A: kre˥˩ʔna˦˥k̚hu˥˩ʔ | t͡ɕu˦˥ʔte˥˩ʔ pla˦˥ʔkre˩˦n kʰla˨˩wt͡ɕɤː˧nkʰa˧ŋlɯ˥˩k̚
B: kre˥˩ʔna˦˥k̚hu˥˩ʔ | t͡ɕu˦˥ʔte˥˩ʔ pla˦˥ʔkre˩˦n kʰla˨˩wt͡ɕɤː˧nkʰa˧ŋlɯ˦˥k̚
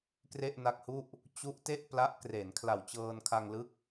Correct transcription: B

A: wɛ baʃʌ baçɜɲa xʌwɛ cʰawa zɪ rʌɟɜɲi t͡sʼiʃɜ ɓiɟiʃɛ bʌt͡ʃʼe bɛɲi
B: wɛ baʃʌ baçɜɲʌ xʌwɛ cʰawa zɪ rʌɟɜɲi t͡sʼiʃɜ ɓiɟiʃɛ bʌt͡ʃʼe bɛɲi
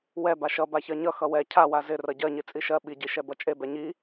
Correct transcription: B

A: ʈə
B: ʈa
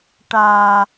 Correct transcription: B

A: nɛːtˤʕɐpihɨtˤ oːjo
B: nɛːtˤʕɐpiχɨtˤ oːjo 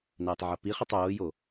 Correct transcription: B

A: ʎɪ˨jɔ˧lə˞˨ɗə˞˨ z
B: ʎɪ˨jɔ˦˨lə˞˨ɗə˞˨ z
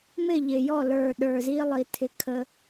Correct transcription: B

